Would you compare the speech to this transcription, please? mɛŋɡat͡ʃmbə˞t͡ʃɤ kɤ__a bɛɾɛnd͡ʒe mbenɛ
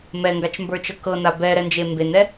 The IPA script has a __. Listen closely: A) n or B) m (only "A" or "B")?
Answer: A